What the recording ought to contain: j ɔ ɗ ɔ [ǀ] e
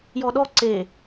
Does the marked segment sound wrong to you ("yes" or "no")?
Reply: no